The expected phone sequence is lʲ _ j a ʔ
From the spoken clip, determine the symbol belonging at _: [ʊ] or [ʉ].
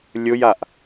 ʊ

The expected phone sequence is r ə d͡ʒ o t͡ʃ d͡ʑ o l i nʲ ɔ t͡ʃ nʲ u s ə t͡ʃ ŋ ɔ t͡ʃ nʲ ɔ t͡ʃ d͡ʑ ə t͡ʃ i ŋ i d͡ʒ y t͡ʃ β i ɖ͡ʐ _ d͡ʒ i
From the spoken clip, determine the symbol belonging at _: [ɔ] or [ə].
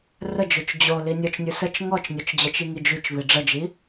ə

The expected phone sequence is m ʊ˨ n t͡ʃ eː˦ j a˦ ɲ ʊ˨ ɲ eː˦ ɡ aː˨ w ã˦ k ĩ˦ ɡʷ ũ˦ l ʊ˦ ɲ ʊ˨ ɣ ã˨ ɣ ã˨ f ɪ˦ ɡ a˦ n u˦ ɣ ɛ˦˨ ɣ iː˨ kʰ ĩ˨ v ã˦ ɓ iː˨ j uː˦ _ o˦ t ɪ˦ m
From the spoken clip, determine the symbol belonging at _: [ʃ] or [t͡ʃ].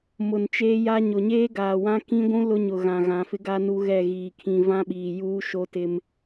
ʃ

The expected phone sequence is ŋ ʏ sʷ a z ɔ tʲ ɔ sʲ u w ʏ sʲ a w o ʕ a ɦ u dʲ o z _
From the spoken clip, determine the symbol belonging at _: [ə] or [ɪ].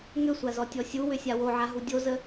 ə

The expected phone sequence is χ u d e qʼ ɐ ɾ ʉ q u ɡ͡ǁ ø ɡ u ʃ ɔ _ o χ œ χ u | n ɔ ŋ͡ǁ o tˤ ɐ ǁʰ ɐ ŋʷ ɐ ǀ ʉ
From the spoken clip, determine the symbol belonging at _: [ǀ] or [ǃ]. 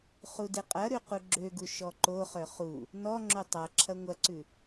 ǃ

